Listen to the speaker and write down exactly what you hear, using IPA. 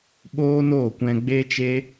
ɓoː˦noː˦˨kʷɛ̃˧ ɡ͡be˦t͡ʃe˦

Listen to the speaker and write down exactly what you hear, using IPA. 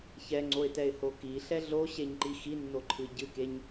çɛŋ͡ǀoɪ̯tɛɪ̯ho kiɬɛ ɮoɕeɲǃi xinːoǃʰɨ ɟɨkeɲ

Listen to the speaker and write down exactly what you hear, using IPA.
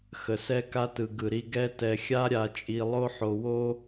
xə˧sɛ˥ka˥tɯ˧ ɡɯ˧ɾi˥ ɡɛ˥ tɛ˧xʲa˥ɾʲa˧ t͡ʃʼi˧lˠo˥ħo˧wo˥

